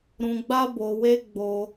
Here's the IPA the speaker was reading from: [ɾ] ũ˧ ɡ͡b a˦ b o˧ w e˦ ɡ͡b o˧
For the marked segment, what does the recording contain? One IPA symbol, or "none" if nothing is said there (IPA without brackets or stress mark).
ɾ